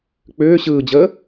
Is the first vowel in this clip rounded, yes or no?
yes